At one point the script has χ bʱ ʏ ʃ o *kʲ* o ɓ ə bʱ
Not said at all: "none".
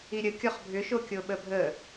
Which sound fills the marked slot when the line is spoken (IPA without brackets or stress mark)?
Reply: kʲ